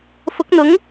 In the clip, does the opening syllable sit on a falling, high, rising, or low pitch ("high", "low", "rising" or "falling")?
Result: rising